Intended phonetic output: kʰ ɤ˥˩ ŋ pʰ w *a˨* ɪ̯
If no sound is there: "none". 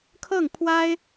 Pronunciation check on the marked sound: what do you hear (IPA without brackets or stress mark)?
a˥